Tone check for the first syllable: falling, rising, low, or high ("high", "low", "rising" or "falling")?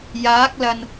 rising